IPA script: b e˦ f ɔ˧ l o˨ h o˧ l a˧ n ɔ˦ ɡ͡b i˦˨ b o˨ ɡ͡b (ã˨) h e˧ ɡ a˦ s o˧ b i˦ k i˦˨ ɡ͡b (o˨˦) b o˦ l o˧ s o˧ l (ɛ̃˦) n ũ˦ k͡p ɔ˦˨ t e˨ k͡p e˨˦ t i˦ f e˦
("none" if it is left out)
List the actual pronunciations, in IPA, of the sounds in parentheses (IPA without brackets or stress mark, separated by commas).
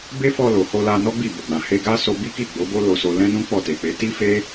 ã˨, o˨˦, ɛ̃˦